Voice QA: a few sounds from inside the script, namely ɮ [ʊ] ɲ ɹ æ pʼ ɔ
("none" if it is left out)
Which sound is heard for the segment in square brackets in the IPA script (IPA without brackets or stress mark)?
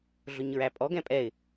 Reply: ʊ